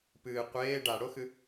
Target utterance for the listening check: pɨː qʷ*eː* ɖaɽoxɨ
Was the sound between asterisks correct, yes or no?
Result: yes